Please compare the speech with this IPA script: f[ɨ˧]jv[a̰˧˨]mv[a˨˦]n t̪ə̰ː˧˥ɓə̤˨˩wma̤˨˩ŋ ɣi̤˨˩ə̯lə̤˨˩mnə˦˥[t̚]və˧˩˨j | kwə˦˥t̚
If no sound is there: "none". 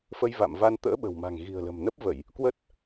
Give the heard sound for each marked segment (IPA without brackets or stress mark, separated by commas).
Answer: ə˧, a̰˧˨, a˧, p̚